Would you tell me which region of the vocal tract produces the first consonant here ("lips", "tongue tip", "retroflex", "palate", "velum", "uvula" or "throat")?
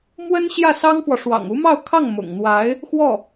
lips